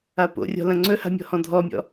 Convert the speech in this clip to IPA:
apo̰rʲɔ̤ lɐ̃ŋ͡ǀɵha̤ mʲɔ̤hɔ̃dʱɔmʲɔ̰

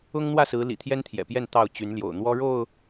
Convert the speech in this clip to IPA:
ʊ˦ŋn̪wä˥˨ sɹ̩˨˦lḭ˨˩ t̪ʰjɛ˦nt̪ʰjɛ̰˨˩pjɛ˥˨n t̪ɑ˥˨ʊ̯t͡ɕy˨˦nljo̰˨˩ʊ̯ n̪wɔ˦ɻo˥˨ʊ̯

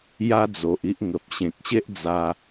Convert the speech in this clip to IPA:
ja˦d͡zo˨ʔi˦ʔ ŋə˨p̚ ɕẽ˨k̚ɕe˦ʔd͡za˧

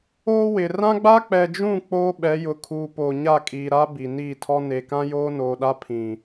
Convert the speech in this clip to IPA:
oː˦wɪ˨ rã˦ɡ͡ba˦k͡pɛ˨d͡ʒũ˦˨ k͡poː˦ɓɛ˨˦jʊ˨kʰuː˨ poː˨ɲa˦˨kʼiː˨ ɾa˦ bi˨niː˦˨tʰɔ˦ ne˨ kã˦joː˦noː˨ɗa˦ pʰĩ˨

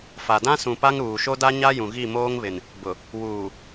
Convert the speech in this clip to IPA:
fa˨dã˦ sũ˨pa˦ŋ ɾuː˨ʃo˦da˦ɲa˦ jũ˨ɣi˦˨moː˦ŋβɪ˨n | bʊ˨ | wuː˨

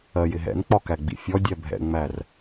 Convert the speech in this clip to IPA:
ɜjɪɦɛ̰nk͡pɒ kæɡ͡bḭfʲɔdʲæ bʱɛ̰ŋ͡mær

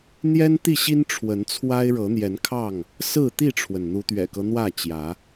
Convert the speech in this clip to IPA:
n̪jɛ˦nt̪i˥˨ɕi˦n ʈ͡ʂʰwə˨˦nt͡sʰwa˦ɪ̯ ɻɤ˨˦n̪jɛ˨˦nkʰɑ˥˨ŋ | sɹ̩˥˨ t̪i˥˨ʈ͡ʂʰwə˩n n̪u˨˦t̪ɥɛ̰˨˩kɤ˦ n̪wä˥˨t͡ɕjä˨˦

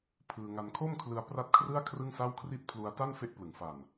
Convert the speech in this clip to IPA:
pʰɯː˧ŋa˧n kʰo˥˩mkʰlɯ˧a̯ pra˥˩t̚kʰrɯ˥˩a̯ kʰrɯ˥˩ŋsa˥˩wkʰri˥˩t̚ pʰlu˧a̯ ta˥˩nfe˦˥ʔ plɯ˩˦ŋfa˨˩n

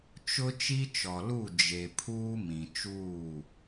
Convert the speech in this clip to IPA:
t͡ʃʊ˦ t͡ʃi˦t͡ʃɔ˨lu˦˨ d͡ʒe˨ pʰuː˦mĩ˨t͡ʃuː˦˨

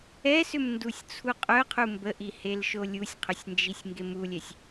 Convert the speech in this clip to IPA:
ɛsʏmndusʲ t͡sʰuqʼœqʰu mbəʔihelʃo lʲusʲqʰʏsʲnd͡ʒisʲ ŋɡemulʲɛsʲ

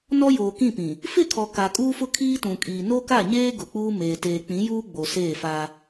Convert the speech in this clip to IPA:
nɔ˦joː˨kĩ˦˨pĩ˨ | fɪ˦˨kʰɔ˨ ka˨kʼuː˦fʊ˦ kʰiː˦tũ˨kʼiː˨ no˦ka˦˨ɲeː˦ ɡʊ˨k͡puː˦ meː˨ teː˨ k͡pĩ˨˦juː˦ ɡ͡bo˨seː˦˨fa˦

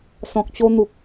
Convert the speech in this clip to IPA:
sɔ̃˨k̚t͡ɕo˧n̪u˨k̚

